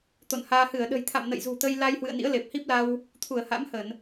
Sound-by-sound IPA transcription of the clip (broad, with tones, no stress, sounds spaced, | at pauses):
t̪ o̰˧˨ n h aː˧ h ɨ˧˩ ə̯ ɗ ə̤˨˩ j t̪ʰ a̰˧˨ m n ə̰˧˨ j z ṳ˨˩ t̪ ə˧ j l a˧ j h w ɨ̰˧˨ ə̯ n ḭ˧˥ ə̯ l e˨˩ p̚ h i˦˥ p̚ l a˧ w | t̪ʰ u˧˩ ə̯ h a̰˧˥ m h ə˧˩˨ n